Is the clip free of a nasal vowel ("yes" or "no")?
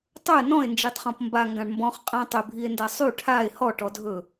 no